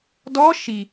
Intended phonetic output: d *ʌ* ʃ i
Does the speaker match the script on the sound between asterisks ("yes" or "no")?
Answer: no